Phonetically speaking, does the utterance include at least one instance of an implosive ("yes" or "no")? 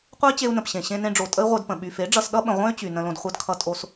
yes